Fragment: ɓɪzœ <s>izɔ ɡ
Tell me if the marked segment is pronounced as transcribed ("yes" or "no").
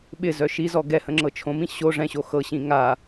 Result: no